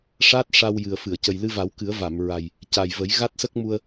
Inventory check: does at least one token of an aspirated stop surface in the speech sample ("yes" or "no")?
no